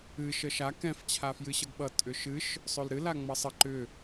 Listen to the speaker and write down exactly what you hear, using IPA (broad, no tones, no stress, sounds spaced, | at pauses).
ɨ ʃ ə ʃ a k ɛ̃ f t͡ɕʰ a f j ɨ ɕ ʌ ɡ ɓ ʌ tʼ ʏ ʃ ɨ ʃ | sˤ ø l ɾ ɨ l a ŋ͡m ʌ sˤ ə ǃ ʏ